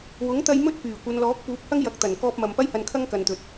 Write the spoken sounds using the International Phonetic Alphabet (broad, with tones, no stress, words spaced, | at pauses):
wʊ˨˥ŋt̪ɐ˧j mɵ˥t̚pyː˨˩kʷɐ˨˧n lɔː˨˥k̚puː˨˥p̚hɐ˥ŋjɐ˨˥k̚ t̪ɐ˨˩n kɔː˧p̚mɐ˨m pɐ˧jhɐ˨nkʰɐ˧ŋ kɐ˨nt̪ɵ˨t̚